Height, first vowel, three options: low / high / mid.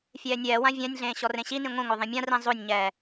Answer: mid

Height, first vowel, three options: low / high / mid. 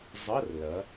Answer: mid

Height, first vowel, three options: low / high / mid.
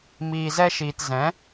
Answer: high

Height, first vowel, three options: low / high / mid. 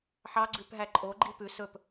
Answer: low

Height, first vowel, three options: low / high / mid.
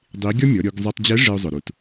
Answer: high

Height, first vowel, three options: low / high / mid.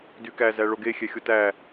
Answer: high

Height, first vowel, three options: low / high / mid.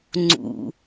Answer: high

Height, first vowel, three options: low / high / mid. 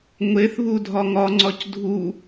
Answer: mid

